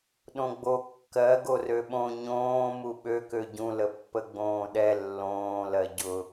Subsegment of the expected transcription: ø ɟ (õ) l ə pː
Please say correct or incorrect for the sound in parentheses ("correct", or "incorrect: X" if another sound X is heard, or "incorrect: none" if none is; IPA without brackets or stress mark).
incorrect: ũ